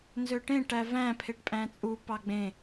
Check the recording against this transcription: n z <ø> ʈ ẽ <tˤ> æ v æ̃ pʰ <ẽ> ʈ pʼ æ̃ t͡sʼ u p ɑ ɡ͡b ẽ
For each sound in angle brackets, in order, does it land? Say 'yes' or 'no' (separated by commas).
yes, no, no